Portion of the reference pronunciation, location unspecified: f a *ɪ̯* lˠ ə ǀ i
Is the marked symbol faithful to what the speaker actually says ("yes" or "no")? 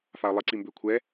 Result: no